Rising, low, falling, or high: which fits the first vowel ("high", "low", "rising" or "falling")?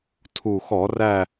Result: low